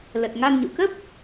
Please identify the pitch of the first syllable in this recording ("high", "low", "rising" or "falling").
low